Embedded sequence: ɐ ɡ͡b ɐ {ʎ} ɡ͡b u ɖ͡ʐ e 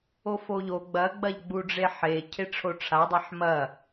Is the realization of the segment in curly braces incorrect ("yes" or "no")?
no